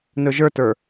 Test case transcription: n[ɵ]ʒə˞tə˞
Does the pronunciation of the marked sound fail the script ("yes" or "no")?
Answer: no